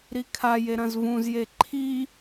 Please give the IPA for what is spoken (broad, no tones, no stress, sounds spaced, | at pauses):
ɾ i kʰ a j e ɾ ɐ̃ z v ũ z j e ǃʰ i